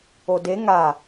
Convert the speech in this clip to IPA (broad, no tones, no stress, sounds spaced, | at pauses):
o d e ŋ a